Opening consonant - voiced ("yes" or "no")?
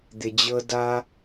yes